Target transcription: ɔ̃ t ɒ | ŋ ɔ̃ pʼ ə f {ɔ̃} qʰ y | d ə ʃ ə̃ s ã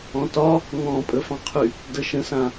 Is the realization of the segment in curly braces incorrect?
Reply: yes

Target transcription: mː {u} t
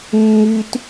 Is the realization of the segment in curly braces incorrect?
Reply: yes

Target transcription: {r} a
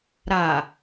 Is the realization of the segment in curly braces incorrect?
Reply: yes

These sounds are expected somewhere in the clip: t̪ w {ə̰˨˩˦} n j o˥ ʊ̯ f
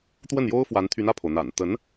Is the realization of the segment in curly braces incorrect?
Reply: yes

